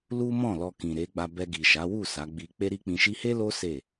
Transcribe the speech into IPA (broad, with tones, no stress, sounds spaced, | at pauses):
l u˦ m ɔ̃˦˨ l ɔ˧ k ĩ˨ ɾ e˨˦ ɡ͡b a˧ b ɛ˧ ɡ i˨ ʃ a˨˦ w u˦˨ s a˨˦ ɡ͡b i˧ k͡p e˦ ɾ i˦ k͡p ĩ˧ ʃ i˦ h e˦ l o˦ s e˦˨